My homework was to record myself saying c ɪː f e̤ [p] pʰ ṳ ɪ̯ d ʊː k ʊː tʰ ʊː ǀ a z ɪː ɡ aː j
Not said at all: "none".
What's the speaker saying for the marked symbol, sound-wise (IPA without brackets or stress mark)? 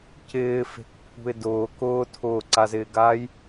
k